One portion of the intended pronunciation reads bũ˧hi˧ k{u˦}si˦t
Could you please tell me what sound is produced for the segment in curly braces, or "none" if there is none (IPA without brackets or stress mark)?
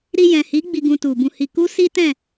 u˦